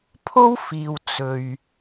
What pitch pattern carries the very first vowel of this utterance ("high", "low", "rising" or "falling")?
high